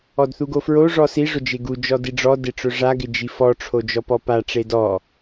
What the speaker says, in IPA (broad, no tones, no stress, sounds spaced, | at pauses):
ɔ d θ u ɡ o f ɹ o ʐ ɔ s i ʐ ʊ d͡ʒ e ɡ u d͡ʒ ɔ d i ɖ͡ʐ ɔ d e ʈ͡ʂ ʊ ʐ a ɡ ɪ d͡ʒ i f ɔ ʈ͡ʂʰ o d͡ʒ ɔ p ɔ p a ʈ͡ʂ e d ɔ